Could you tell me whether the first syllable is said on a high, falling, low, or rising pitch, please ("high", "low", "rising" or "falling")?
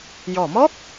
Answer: low